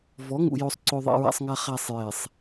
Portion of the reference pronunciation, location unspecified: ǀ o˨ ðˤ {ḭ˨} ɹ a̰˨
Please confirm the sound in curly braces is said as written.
yes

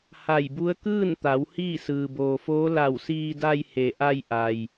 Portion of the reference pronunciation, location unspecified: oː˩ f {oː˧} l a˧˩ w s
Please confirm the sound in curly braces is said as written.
no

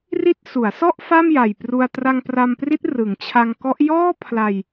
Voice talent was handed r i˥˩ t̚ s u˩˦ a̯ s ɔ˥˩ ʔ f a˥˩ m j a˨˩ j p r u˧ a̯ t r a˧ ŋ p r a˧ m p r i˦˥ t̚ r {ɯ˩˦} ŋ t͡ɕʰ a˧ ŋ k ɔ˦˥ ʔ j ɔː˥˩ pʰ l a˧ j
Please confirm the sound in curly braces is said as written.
yes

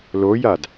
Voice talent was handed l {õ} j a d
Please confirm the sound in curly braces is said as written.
no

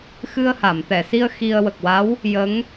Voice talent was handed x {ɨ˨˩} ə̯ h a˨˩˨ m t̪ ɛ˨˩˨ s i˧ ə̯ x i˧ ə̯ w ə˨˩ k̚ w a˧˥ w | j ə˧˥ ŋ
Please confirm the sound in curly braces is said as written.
no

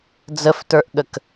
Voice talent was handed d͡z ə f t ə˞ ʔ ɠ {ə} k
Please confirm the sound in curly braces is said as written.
yes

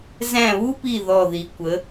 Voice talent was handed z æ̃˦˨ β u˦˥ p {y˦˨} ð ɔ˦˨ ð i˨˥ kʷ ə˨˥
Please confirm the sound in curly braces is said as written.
no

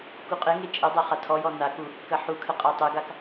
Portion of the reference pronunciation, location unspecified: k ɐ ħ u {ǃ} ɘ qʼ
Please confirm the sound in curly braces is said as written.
no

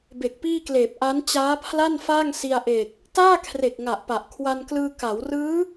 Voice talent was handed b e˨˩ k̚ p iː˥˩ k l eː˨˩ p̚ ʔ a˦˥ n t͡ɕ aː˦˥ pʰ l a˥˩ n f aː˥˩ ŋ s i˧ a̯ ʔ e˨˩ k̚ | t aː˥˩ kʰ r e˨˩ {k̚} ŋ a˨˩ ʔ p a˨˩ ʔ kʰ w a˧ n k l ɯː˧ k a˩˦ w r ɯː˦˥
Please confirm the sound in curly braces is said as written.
yes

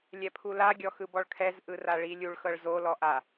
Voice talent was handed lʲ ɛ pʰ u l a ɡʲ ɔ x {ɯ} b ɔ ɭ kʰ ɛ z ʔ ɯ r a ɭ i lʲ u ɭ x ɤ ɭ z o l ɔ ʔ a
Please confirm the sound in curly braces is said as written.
yes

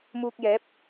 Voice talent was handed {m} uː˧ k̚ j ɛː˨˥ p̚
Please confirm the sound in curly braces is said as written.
yes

